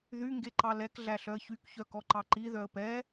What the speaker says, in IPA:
ðy ŋɡeǃɑlɛk ɮæɬœə̯çyk çœkɔǃɑǃi ðœə̯pɛ

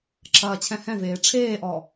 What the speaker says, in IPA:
ǁʰɐːt͡ɕʰɛ̃hɛ̃veː ʈ͡ʂʰeːʔɔ

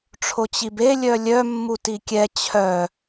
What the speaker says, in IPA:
ʈ͡ʂʰot͡ɕibe lʲœlʲœ mːutikʲɛ t͡ɕʰœ

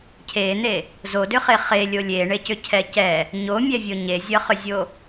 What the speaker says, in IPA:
cʰen̪e | zodʏχe χelʲo lʲeɳecʏcʰɛ cɛ | ɲomʲɛvʲo ɲezʲʌχʏzʲo

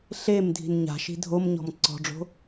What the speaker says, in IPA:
ɬem dʱi̤nɲa̤ʃi̤ dʱomɲɔ̤m ǀɔ̤ɖ͡ʐo̤

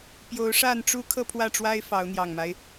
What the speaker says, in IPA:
pjo˨˦ʊ̯ʂa˥˨n ʈ͡ʂu˦ kʰɤ˥˨pʰwä˥˨ʈ͡ʂwa˦ɪ̯ fɑ˨˦ʊ̯n̪jɑ˨˩ŋma˦ɪ̯

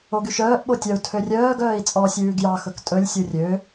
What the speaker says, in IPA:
oɡyʃœːʔ ɓotʲœu̯ tʰørʲœːɡ œːi̯t͡sʼɔ sʲʉːɡjɑ xɵktʼɵlʲ sʲurʲø

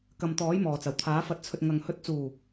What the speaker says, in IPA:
kɐ˨mt̪ɔː˨˥j mɔː˨˩t͡sɐ˨˩wt̪ʰaː˨˥ fɐ˨t̚t͡sʰɵ˨t̚ ŋɐ˨ŋ hɵ˨˥t̚t͡suː˨˩

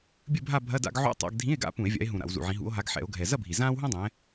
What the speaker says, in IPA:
bʲɨ˥˧bʱa˥˧ bʱɐ˧˥˧da̰˥˧ɡ ʕṵ˧˥˧ tˤa̰˧˥˧ɡdʱĩ˧˥˧e̯ɡa̰˥˧ pũ˧˩˧e̯vʲa̰˨˦e̯ɦũ˨˩ ɾa̰˧˩˧wzṵ˨˩ʕĩ˨˦ ɦṵ˨˦o̯ɦa˨˦ɡ ħɛ̰˧˩˧o̯ɡʱɛ˨˩ zɐ˥˧bʱi˨˩ zãː˥wɦũ˥dˤɛ̃˨˦

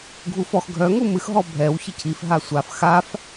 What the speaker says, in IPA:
ɡʱufɔx ɡʱœ ŋumɨx ɦɔbʱɛw çicʰif ɦasʷaf xaf

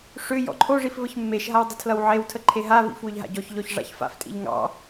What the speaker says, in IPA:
ʂʏ jɔ̰ǃʰoʐif vəçmːeʃɦaw dˤətʰlʌwʕewtʰə ǃʰeɦavḭf wʏʎɦa̰ɟɔçʎɔç ʐa̰çfa̰ftʼḭʎ ŋɑ̰

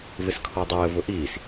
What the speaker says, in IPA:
vɪskʰɔdˤəː vʊʔiːs

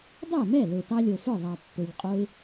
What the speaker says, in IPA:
dˤɛ˥˩mɛ˥˩ lø˨˩tɑ˦lʲo˨˩fə˞˥˩ ðˤɑ˨˩pːø˨˩ʎqʼo˦ɪ̯

